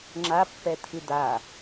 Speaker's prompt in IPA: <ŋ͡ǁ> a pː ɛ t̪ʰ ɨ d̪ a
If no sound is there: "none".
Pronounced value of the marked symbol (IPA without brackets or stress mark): ŋ͡ǁ